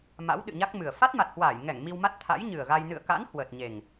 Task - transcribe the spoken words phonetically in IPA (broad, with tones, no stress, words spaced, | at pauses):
ma̰˧˥wɗɨ̰˧˨ɲa˦˥k̚mɨ˨˩ə̯ fa˦˥t̚ma˨˩t̚hwaː˧˩j ŋɛ˧˩ŋ mi˧wma˦˥t̚ t̪ʰa̰˧˥jɲɨ˨˩ə̯ɣa˧j nɨ̰˧˨ə̯ka̰˧˥n hwəː˨˩t̚ ɲe˨˩ŋ